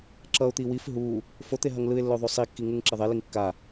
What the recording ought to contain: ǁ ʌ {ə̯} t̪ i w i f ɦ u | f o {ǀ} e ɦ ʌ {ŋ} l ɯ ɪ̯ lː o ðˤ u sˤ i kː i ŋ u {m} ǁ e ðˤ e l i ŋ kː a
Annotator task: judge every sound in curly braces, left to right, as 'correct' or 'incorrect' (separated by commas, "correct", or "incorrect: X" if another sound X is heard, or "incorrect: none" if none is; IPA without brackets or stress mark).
incorrect: ʊ̯, incorrect: t̪, correct, incorrect: ŋ